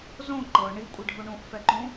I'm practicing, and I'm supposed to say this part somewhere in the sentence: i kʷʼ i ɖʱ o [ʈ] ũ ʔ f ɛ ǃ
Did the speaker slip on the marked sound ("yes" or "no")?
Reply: yes